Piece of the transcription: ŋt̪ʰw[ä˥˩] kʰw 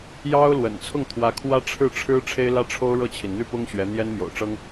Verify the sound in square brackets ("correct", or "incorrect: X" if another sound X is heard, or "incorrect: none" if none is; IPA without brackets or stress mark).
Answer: incorrect: ä˧˥